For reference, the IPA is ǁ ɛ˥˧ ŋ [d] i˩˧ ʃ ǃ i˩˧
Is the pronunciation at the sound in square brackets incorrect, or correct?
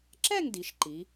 correct